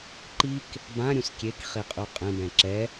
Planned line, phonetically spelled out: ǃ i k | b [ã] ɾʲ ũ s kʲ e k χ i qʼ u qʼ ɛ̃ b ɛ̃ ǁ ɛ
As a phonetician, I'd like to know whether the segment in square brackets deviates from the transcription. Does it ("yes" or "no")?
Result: no